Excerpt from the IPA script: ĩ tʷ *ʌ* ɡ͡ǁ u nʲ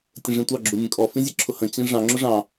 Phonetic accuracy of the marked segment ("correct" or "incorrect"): incorrect